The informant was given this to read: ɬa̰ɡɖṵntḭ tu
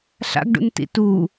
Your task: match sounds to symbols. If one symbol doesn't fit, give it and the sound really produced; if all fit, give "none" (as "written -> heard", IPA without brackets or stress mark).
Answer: none